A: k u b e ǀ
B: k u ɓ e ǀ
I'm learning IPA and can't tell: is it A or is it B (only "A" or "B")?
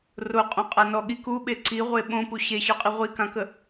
B